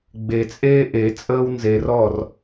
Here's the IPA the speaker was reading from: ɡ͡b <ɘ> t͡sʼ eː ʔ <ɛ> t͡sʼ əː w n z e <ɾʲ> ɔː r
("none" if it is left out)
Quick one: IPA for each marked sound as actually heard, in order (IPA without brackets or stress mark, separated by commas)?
e, e, r